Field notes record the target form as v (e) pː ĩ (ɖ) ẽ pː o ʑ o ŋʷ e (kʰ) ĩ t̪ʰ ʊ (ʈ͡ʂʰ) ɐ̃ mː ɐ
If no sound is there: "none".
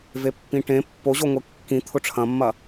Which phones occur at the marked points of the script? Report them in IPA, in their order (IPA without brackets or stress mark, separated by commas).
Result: e, ʈ, kː, ʈ͡ʂʰ